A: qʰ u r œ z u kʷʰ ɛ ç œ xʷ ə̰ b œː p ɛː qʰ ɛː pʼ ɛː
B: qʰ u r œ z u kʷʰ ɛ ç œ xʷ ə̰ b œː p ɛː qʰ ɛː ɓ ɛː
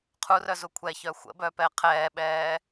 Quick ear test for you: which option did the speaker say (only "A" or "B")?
B